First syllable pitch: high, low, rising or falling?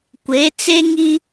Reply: rising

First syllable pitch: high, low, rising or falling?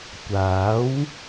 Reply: rising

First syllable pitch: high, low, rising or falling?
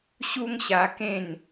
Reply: high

